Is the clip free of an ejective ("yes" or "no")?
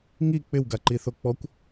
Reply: yes